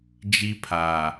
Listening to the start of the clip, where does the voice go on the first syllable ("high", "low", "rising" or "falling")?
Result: high